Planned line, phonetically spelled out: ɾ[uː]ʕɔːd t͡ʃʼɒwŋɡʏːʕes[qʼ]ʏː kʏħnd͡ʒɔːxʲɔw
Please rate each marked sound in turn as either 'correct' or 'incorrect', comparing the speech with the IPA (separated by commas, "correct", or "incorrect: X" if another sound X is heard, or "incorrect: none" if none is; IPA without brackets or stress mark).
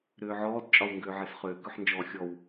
incorrect: ʏː, incorrect: χ